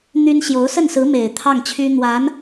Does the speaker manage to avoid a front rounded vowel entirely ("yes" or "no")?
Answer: no